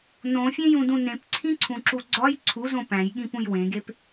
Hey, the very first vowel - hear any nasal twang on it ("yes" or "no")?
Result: yes